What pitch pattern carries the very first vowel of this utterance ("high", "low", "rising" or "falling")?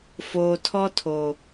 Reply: low